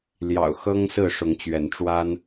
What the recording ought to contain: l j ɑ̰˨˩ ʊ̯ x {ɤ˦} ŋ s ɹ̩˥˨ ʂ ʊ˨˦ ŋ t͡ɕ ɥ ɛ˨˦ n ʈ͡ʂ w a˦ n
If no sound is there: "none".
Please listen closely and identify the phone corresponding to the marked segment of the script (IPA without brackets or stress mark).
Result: ɤ˦